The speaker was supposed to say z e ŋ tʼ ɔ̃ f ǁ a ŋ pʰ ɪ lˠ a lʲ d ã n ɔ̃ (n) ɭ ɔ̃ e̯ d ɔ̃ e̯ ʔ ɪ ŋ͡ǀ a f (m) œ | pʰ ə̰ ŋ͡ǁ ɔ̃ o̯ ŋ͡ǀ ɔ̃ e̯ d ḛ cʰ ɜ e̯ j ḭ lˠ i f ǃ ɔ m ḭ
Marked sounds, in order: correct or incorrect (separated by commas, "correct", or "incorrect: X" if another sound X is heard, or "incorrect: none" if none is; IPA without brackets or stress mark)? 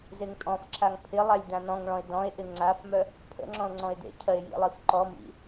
incorrect: ŋ, correct